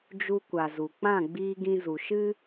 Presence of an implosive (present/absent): absent